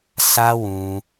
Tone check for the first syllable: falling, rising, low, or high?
high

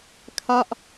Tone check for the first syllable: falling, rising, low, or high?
falling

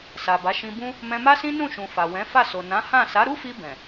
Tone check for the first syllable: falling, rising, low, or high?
low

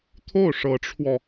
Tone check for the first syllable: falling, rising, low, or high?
falling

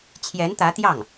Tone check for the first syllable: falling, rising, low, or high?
rising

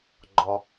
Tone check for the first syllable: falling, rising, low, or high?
high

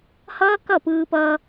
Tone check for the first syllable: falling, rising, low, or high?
high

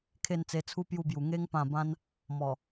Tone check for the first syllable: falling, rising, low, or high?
falling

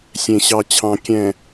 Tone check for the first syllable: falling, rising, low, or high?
low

